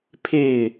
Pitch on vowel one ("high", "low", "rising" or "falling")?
falling